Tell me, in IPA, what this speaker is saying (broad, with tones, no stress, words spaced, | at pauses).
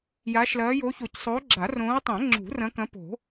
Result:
jaː˨˦ʃlɐː˨˦jo˨˦ço˨˩˦c sˤoː˨˦ɡ͡ǁa˨˩˦rõː˨˦ə̯tˤɛ̃˨˩˦ ŋ͡ǁṳ˨˩˦rɐ̃˨˦kɐ̃˨˦ po̤˨˩˦